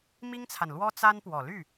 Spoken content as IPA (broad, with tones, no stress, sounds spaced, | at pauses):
m i˥ ŋ t͡sʰ a˨ n l w ɔ˥ t͡s a˥ n p w ɔ˨˩ l y˥˩